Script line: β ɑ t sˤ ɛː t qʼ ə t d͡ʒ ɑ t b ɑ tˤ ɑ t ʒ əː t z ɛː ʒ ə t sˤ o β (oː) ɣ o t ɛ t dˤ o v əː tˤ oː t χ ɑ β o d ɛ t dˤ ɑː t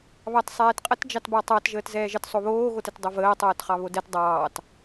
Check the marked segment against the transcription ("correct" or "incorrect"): correct